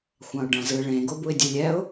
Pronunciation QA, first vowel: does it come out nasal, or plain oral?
nasal